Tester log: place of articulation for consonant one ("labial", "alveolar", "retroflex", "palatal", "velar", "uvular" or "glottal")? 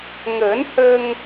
velar